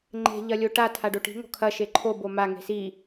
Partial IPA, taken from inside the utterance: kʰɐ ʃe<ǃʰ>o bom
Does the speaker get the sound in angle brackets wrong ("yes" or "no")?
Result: no